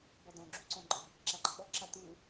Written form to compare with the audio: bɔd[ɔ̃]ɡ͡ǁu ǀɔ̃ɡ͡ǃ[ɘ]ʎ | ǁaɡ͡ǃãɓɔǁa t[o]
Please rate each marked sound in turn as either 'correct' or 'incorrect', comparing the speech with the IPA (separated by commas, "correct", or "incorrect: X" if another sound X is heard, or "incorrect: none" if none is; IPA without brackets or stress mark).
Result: correct, correct, incorrect: u